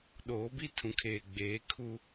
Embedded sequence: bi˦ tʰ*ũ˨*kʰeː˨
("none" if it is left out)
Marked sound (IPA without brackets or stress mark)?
ũ˨